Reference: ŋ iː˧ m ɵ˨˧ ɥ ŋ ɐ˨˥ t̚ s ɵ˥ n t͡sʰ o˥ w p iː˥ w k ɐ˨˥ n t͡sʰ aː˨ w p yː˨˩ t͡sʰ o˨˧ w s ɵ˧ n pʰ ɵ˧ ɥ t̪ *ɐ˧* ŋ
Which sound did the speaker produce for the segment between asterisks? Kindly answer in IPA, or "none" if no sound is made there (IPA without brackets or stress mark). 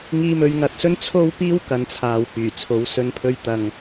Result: ɐ˨